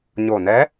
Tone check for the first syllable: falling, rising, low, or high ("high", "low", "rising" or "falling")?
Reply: low